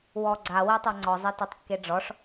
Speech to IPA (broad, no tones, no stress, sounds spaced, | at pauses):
w ɔ ɡ͡ǀ a w e tˤ a ŋ͡ǀ ɔ zˤ e t e tˤ kː e ɖ͡ʐ ɔ ʂ